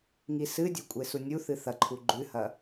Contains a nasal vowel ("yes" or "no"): no